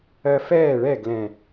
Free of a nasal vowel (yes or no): no